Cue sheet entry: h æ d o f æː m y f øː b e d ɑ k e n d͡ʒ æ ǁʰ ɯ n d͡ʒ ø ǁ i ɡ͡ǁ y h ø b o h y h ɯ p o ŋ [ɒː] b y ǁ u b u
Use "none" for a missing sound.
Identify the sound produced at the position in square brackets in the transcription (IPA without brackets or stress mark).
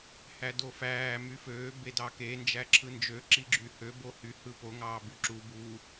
ɑː